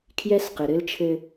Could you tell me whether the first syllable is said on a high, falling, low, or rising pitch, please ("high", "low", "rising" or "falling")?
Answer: high